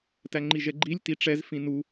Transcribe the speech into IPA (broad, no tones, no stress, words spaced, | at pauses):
tæŋ͡ǃiʒɛɡ͡ǃilʲ tiʈ͡ʂɛz fĩnu